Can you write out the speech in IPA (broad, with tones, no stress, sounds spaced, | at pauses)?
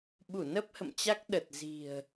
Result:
ɓ u˧˩ n ə˦˥ p̚ h ə̰˧˨ m t͡ɕ a˦˥ k̚ ɗ ə˨˩ t̚ z i̤˨˩ ə̯